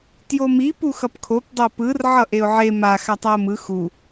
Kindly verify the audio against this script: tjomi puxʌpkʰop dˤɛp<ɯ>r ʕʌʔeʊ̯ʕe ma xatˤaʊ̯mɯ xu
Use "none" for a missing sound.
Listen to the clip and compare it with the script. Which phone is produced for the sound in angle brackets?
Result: ɯ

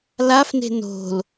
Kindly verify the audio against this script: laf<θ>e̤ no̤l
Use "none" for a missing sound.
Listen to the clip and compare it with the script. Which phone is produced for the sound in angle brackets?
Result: n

